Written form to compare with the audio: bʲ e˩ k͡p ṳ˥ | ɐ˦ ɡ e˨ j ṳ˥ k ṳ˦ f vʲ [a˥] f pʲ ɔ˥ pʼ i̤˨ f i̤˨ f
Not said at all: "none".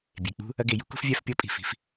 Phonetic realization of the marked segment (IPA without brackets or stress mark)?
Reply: a˥